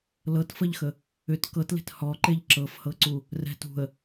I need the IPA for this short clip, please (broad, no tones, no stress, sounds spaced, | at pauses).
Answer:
l ɤ t f ə ʎ x ə | ʏ t k ɤ t l e̤ t h ɔ ǃ e ʎ ǁ ɤ f h ɤ ǀ u | r ɛ̤ t ṳ ə̯